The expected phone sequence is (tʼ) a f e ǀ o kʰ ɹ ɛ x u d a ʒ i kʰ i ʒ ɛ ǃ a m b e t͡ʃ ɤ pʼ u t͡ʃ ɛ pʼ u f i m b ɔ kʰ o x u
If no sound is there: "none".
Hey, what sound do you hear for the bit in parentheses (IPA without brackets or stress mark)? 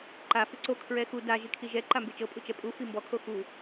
ǃ